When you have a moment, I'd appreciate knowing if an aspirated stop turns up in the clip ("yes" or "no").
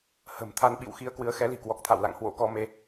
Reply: yes